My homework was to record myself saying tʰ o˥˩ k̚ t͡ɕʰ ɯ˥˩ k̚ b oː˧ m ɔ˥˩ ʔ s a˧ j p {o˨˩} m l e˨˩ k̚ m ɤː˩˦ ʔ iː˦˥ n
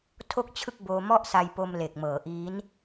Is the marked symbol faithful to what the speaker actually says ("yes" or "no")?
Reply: no